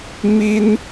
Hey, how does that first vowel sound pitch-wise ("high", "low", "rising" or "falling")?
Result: high